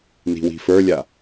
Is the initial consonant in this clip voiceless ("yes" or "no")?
no